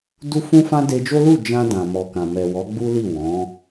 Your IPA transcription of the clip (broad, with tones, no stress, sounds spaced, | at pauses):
d u˦ f ũ˦ f ã˦ d e˧ d͡ʒ o˦ l u˦˨ d͡ʒ ã˧ d ã˨ m ɔ˨ k ã˨ m ɛ˨ w ɔ˨˦ ɡ͡b u˦ l i˦˨ w ɔ̃˨˦